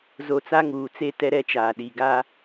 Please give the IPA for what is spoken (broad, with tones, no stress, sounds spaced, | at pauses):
z o˨ t͡s a˦ ŋ uː˨ t͡s e˦ t ɛ˦ ɾ ɛ˦ t͡ʃ aː˨ ɗ i˨ ɡ a˦